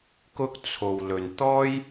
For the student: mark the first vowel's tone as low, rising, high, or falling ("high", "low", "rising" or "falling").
high